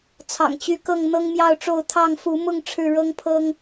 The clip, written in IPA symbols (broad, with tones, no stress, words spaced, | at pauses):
t͡sʰɑ̰˨˩ŋt͡ɕy˨˦kɤ˥˨ŋ n̪ɤ˦ŋmjɑ˥˨ʊ̯ʈ͡ʂo˥˨ʊ̯ t̪ʰɑ˥˨ŋfu˨˦mʊ˥˨ŋ ʈ͡ʂʰɻ̩˥˨ɻɤ˦ŋpʰɤ˦ŋ